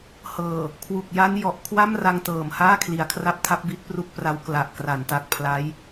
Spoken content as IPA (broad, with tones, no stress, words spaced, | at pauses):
hɤː˨˩ | kʰwu˨˩k̚ja˦˥n jɔ˨˩ʔkʰwa˥˩m ra˧ŋtɤː˨˩m haː˥˩kʰli˨˩a̯kʰra˦˥p̚tʰa˦˥p̚ bi˦˥t̚pru˥˩k̚pra˦˥w kla˨˩ʔ kra˩˦nta˨˩k̚ pʰla˦˥j